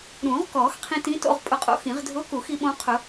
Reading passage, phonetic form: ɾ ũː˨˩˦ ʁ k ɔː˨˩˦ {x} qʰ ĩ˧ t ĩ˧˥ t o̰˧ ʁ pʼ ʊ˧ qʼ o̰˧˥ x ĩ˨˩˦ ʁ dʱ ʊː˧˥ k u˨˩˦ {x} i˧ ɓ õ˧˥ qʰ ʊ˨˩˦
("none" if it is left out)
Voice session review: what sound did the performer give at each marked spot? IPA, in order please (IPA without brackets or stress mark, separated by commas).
x, x